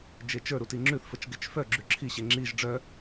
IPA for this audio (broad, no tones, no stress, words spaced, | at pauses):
d͡ʒet͡ʃə˞ɾuti ŋ͡ǁʉθfət͡ʃ ɡet͡ʃfœ ɡ͡ǁʉǁʰiɕe ŋ͡ǁiʒ ɖ͡ʐœ